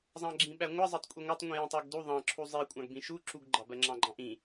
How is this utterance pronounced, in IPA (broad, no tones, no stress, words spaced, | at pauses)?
zˤɑ̃ɡ͡ǁĩɓæŋʷʌ zˤɜtˤkʷʼiŋʷætˤ ŋʷĩjĩtˤɜɡdu ðˤɑ̃ǁʰu zˤi kʷʼɑ̃ɡbĩʃu ǁuɡɡ͡ǃɑbɜ ŋ͡ǁɑ̃ɡ͡ǃɑ̃ʔĩ